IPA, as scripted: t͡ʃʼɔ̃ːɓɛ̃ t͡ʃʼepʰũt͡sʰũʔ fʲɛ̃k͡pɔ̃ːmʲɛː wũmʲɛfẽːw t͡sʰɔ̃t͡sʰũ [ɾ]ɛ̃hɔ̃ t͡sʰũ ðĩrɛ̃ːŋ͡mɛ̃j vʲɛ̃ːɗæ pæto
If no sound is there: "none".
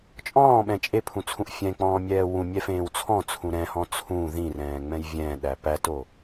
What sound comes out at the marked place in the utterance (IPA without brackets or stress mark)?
ɾ